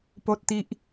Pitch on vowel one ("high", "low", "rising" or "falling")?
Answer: high